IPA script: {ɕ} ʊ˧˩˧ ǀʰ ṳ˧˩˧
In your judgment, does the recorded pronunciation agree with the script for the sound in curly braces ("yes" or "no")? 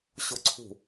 yes